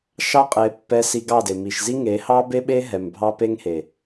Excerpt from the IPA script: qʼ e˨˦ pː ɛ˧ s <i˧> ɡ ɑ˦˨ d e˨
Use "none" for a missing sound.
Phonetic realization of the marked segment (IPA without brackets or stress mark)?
i˧